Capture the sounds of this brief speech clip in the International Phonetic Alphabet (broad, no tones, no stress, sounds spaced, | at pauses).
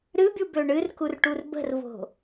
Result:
ɾ ɨ bʲ u b ø ɳ ɨ r k u r ʈ u r b ə̤ r v o̤